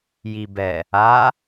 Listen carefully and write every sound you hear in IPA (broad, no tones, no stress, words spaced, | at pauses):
jibɛ | a